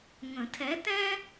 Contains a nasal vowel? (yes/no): yes